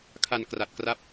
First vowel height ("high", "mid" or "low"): low